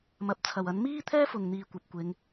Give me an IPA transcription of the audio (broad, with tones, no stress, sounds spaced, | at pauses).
m ɐ˨ p̚ t͡sʰ ɐ˨˩ w ɐ˨˥ n m iː˥ t̪ʰ ɛː˥ f ʊ˨˩ ŋ n̪ iː˨˩ kʷ ɐ˧ p̚ kʷ ɪ˨˥ ŋ